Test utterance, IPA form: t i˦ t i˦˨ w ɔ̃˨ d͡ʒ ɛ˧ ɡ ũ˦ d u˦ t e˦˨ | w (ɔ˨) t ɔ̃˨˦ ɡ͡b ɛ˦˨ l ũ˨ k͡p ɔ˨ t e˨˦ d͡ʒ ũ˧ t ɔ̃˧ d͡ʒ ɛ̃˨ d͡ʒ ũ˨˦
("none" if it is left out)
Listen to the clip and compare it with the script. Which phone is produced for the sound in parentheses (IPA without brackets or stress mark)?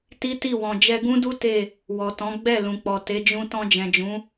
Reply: ɔ˨